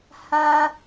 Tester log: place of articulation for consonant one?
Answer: glottal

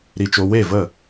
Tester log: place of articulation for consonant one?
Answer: alveolar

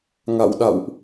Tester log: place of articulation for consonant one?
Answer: velar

